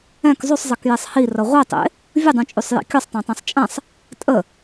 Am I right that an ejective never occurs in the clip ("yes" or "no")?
no